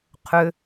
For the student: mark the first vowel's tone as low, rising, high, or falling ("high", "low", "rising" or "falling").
low